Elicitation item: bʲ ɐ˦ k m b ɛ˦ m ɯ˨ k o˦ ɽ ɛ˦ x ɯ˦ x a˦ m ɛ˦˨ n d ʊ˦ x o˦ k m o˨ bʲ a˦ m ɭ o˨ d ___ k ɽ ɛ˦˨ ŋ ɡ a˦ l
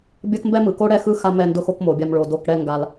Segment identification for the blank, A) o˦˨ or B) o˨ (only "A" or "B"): A